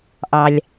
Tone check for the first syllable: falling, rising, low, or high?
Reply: low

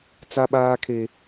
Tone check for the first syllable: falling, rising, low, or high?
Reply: high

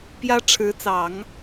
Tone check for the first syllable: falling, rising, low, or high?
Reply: high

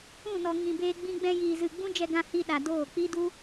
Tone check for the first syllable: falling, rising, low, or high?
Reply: falling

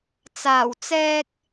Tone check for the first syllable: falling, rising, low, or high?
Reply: low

